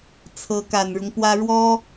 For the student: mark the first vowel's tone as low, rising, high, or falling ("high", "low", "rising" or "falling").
rising